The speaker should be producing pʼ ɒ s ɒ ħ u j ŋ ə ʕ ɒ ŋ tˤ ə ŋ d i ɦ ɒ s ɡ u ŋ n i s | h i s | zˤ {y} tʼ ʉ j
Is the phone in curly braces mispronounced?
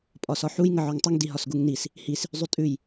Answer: no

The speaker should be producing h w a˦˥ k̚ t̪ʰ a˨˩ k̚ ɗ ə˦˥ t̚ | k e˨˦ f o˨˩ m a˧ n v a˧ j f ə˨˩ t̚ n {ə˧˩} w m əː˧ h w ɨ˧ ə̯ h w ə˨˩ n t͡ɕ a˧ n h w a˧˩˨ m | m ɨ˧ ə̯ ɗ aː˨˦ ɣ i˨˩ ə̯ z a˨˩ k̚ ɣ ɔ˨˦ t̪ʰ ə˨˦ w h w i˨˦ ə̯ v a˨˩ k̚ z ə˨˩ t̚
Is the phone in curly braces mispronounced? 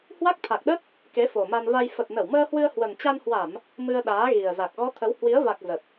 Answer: no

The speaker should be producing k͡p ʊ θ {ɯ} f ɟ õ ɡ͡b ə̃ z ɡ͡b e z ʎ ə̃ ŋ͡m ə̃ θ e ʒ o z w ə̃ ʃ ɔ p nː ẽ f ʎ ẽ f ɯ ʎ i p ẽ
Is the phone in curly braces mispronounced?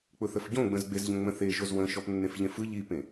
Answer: yes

